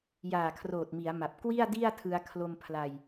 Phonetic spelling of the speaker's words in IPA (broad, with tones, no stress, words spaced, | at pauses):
jaː˨˩kʰroː˨˩t̚mi˩˦a̯ma˨˩p̚ kwi˥˩a̯di˥˩a̯tʰɯ˧a̯ kʰlo˧mpʰla˧j